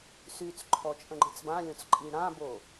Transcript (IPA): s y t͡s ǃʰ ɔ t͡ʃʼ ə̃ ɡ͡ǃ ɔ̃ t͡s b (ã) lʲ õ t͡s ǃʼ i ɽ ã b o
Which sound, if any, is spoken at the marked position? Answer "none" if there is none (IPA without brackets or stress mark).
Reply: ã